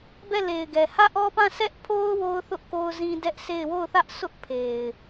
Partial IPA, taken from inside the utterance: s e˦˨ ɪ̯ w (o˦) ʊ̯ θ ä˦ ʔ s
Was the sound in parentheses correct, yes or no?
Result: no